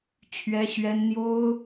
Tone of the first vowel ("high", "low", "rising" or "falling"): high